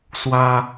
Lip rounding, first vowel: unrounded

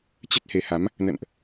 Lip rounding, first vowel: unrounded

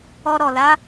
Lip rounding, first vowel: rounded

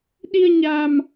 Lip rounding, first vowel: unrounded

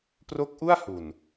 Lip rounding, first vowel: rounded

